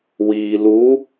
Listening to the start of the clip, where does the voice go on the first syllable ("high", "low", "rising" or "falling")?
low